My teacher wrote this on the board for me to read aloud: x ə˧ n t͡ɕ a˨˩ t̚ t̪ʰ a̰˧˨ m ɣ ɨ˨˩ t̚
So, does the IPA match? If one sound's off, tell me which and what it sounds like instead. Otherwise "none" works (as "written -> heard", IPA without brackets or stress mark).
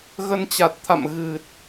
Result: x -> ɣ